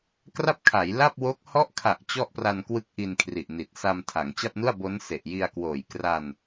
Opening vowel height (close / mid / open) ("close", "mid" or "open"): open